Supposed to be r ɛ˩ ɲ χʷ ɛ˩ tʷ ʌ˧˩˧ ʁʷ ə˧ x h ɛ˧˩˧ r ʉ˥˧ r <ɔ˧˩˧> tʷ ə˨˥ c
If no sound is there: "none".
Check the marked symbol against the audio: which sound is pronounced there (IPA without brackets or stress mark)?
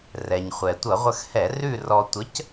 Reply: ɔ˧